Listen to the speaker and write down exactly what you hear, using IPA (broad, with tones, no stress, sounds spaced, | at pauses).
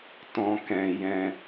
t ɔ̃˦ k ɛ̃˧ j ɛ̃˧